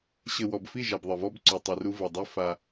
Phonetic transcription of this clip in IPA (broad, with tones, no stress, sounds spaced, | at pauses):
ɕ ɘ˨ w ɔ˨ b f i˦˨ ʒ a˨ b ðˤ ɘ˨ v ɔ˦ b ǀ u˨ tˤ i˨ r u˦ v ɘ˨ dˤ i˦ f a˦